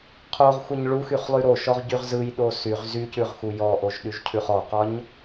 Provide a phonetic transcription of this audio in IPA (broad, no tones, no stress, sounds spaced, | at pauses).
qʰ o ʁ xʷ ə ɲ ɭ u x y χ lˠ y ɾ o ʃ ɔ ʁ ɟ y ʁ z ɯ j ɗ o s y ʁ z y c ʉ ʁ x u j ɔ ʔ o ʒ ɗ y ʒ cʰ ʉ χ ɔ q ɒ ɲ